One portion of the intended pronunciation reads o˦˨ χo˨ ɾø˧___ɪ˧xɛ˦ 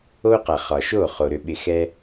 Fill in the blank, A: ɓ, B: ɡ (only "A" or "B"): A